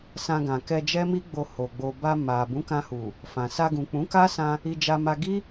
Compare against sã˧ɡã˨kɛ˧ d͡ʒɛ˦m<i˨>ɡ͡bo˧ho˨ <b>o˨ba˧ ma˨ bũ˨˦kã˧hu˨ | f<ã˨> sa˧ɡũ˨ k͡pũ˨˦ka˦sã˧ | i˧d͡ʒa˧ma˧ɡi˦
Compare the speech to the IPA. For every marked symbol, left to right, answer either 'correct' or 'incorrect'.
incorrect, incorrect, correct

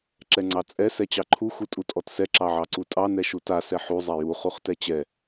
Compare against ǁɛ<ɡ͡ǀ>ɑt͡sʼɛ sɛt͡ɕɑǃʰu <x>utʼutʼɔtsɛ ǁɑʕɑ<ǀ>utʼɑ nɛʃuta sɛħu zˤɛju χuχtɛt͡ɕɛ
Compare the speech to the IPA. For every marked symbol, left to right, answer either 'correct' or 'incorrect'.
incorrect, correct, correct

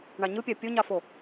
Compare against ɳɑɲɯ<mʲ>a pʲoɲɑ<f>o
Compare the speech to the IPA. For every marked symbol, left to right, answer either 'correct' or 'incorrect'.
incorrect, correct

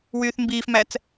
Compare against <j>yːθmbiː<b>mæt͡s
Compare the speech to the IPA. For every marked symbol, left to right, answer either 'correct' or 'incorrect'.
incorrect, incorrect

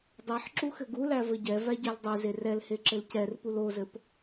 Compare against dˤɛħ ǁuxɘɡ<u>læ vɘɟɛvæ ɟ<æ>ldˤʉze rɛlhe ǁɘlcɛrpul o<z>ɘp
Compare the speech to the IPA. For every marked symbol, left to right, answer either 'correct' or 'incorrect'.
correct, incorrect, correct

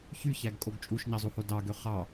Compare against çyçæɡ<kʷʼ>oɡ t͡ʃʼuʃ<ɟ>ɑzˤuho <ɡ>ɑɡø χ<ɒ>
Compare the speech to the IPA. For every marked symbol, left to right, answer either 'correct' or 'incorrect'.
incorrect, incorrect, incorrect, incorrect

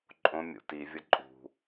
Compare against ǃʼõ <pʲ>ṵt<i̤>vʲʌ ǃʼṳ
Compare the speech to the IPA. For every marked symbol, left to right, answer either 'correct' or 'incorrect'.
incorrect, incorrect

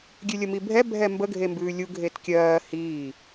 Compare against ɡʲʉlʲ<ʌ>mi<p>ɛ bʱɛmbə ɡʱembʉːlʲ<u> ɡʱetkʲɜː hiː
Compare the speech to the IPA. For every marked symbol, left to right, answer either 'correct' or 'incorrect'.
incorrect, incorrect, correct

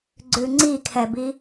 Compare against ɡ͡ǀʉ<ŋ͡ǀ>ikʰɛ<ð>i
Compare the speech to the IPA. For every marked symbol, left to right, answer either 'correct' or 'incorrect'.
correct, incorrect

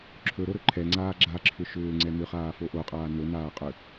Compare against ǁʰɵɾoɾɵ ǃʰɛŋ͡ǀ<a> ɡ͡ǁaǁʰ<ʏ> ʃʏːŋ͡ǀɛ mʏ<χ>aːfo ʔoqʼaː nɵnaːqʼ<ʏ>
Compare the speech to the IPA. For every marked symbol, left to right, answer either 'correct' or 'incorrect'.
incorrect, correct, correct, correct

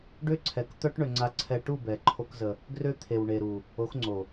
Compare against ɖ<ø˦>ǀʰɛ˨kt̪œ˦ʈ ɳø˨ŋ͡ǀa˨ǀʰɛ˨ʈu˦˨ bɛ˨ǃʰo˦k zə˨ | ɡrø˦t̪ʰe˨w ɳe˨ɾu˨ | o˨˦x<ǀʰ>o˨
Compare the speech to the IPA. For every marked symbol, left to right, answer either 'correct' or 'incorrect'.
correct, incorrect

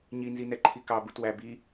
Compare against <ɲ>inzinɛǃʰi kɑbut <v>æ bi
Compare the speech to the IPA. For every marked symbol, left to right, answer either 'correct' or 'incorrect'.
correct, incorrect

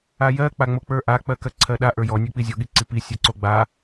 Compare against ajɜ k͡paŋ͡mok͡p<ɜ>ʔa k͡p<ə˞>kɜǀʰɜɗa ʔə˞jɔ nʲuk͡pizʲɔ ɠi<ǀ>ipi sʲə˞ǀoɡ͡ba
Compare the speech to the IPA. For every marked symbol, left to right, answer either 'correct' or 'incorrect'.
incorrect, incorrect, correct

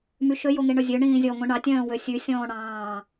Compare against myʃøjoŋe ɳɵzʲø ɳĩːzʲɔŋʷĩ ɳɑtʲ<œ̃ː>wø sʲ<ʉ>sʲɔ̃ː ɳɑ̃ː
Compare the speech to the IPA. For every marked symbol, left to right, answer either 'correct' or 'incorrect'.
correct, correct

